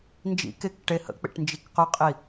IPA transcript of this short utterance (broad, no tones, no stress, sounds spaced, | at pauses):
n d͡ʒ ḭ k e k ʈ e h ə̰ k͡p ḛ ʈ n d͡ʒ i k q ɵ qʼ i